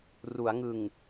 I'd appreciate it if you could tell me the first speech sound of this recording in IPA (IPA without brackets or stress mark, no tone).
r